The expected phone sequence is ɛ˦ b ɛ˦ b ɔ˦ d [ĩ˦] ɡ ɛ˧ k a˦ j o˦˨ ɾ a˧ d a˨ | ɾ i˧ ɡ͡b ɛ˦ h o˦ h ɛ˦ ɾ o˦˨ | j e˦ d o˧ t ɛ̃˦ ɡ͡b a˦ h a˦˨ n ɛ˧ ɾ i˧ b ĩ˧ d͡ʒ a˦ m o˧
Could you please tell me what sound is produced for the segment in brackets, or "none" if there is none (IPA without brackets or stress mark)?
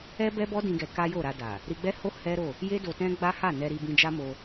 ĩ˧